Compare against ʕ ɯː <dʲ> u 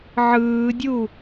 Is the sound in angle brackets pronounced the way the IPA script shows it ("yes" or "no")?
yes